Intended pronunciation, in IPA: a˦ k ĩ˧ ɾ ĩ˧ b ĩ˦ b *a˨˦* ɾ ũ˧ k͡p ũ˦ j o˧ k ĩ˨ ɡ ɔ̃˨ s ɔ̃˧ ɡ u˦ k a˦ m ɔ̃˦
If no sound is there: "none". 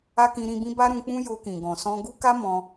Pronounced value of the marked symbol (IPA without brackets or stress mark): a˦